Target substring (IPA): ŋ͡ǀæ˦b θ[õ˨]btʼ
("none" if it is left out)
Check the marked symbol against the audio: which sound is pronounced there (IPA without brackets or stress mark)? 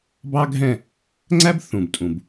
ũ˨